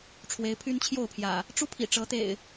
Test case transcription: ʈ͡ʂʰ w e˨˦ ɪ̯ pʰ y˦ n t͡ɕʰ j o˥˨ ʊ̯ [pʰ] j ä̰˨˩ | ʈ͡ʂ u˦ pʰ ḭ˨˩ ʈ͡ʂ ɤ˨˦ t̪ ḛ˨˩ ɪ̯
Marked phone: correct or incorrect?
correct